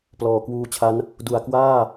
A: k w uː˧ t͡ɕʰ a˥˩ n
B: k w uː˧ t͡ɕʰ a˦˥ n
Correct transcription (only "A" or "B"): B